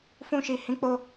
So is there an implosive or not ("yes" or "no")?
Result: no